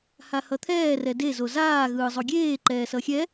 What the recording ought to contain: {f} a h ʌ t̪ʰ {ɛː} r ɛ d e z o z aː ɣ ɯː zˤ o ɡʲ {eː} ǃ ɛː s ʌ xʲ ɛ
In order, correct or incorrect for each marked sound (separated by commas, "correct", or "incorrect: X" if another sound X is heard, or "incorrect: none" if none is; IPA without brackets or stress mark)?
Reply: incorrect: h, correct, correct